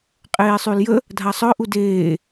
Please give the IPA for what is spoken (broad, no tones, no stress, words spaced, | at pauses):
qʼeːsˤyljə | dʱasˤœ ʔudeː